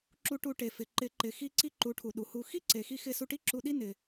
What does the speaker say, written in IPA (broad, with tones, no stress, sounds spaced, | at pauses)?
ǁ u˧ ʈ u˧ ʈ e˨ f ɪ˨ ǃ ɪ˨˦ ǃ ɪ˨ x i˧ ǀ i˦ ǃ u˨˦ ʈʰ u˨ ɗ u˨ h u˧ x i˦ ǀ e˨ x i˧ x ɪ˧ s u˧ ʈ i˦ ǁ u˧ ɗ i˦ n ɪ˧